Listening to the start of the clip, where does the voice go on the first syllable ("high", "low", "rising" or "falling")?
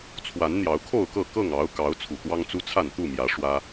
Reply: rising